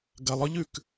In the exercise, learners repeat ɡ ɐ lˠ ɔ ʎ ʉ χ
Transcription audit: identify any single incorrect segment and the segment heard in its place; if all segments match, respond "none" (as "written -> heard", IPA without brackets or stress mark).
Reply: χ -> k